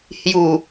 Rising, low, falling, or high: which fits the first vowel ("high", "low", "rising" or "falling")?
low